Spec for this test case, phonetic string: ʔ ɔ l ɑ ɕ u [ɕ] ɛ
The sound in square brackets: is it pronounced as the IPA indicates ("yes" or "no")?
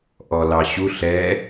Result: no